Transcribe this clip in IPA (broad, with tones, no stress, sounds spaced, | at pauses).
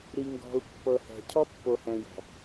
ɾ i˨ ŋ ɡ ɔ̤˨ u̯ pː ɤ˨ h ɛ̤˨ cʰ ɔ˦ pː o˨ h ɛ̃˨ j ɔ̤˨